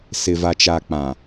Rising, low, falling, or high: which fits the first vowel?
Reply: low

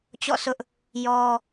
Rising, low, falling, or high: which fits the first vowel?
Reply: falling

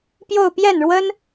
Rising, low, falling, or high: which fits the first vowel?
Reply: falling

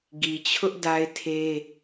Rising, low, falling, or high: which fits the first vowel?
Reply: low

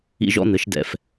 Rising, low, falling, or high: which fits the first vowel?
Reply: high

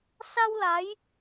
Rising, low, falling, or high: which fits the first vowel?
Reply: high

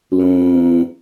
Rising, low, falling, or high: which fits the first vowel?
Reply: low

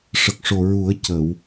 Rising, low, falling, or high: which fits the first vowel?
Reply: low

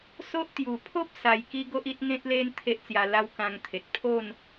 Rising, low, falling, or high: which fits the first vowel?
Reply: high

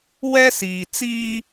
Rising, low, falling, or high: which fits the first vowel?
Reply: high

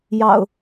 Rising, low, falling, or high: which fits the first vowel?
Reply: low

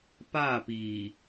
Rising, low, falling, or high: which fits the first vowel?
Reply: falling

